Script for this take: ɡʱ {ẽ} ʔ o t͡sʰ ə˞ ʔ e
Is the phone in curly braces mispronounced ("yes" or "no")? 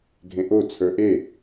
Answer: no